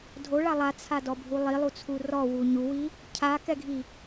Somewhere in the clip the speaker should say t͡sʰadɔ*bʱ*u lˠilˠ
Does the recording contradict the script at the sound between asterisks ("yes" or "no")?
no